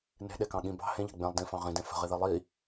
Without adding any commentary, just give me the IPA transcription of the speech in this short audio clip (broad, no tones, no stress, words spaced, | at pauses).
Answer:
ne̤ɗekɑ̃ ɠĩ bɑ̤ hẽʎɑ̤ ɡ͡bẽlˠ dĩfɑ̃ ʁĩdẽ fə̤ʁiði lˠi